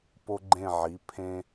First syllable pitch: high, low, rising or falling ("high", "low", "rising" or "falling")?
high